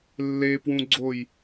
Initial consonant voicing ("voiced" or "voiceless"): voiced